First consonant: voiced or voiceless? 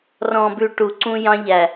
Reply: voiced